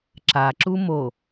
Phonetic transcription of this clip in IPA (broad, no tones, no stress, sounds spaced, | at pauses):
ǁ a ǁ u m o